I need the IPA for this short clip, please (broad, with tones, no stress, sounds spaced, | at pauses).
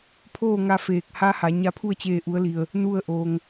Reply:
pʰ oː˥˨ ŋ a˧ f eː˧˩ k̚ h a˧˥ h a˩˧ ɲ a˧˥ pʰ u˥˨ ə̯ t͡ɕ eː˧ ʔ u˧˥ ə̯ l i˧ ə̯ | n u˥˨ ə̯ ʔ oː˧ ŋ